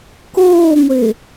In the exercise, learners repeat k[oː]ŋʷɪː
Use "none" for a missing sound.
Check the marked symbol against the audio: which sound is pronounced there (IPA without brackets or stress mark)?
oː